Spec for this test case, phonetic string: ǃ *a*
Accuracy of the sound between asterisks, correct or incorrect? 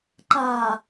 correct